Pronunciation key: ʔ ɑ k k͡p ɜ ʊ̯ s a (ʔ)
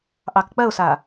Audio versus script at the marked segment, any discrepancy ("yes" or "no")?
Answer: yes